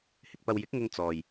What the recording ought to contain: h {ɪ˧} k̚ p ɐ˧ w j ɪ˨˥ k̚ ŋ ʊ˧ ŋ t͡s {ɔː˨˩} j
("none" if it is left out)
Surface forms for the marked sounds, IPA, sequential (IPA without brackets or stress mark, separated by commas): ɪ˧, ɔː˨